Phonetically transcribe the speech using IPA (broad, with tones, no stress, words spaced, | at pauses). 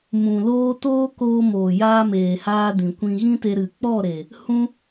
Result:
mũ˨loː˦ toː˦koː˧ moː˨jaː˧meː˨haː˧ dĩ˨kʷĩ˧ ɣĩ˦te˧ɾɨ˨ k͡pɔ˦˨ɾe˨ | hũ˦